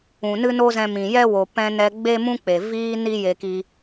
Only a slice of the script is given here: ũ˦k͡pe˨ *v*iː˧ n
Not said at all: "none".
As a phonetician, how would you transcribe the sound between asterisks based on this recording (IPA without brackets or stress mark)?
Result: v